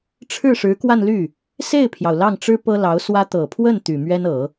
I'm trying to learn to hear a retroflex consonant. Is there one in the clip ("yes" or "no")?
yes